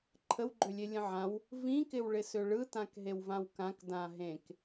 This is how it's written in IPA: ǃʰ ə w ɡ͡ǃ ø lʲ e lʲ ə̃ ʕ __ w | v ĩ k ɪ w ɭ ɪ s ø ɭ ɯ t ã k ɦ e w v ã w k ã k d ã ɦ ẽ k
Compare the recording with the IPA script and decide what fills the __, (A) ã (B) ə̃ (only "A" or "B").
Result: A